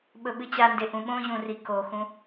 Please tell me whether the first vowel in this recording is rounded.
yes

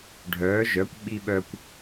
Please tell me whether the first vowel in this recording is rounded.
yes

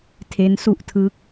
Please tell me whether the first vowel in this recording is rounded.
no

